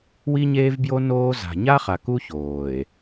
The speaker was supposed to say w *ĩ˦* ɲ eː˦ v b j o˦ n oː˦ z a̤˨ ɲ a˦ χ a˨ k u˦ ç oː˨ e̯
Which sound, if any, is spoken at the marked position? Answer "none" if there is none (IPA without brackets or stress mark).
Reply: i˦